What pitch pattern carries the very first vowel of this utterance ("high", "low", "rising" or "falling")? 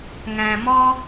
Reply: low